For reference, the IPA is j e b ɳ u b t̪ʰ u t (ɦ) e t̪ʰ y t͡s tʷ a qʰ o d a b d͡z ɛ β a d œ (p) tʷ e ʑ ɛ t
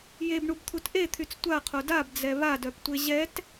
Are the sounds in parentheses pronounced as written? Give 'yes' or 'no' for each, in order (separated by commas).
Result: no, yes